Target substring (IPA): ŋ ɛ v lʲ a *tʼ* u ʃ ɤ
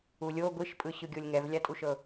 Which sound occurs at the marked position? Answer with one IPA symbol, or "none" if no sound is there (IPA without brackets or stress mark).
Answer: tʼ